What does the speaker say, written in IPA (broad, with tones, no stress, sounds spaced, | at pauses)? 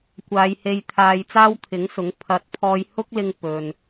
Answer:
kʷ aː˨˧ j h e˧ j t̪ʰ aː˧ j t͡s aː˥ w t̪ʰ ɪ˨˥ ŋ s ʊ˨˥ ŋ pʰ ɐ˨ t̚ pʰ ɔː˧ j h ʊ˥ k̚ l ɪ˧ ŋ p ɵ˧ n